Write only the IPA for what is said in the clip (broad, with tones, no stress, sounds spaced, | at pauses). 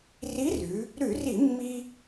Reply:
r i˧˥ r ʉ˩˧ | ɾ ʉ˧˩˧ r i˧˩˧ mː i˧